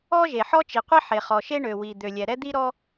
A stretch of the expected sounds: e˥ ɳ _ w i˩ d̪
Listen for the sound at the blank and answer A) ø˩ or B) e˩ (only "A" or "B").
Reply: A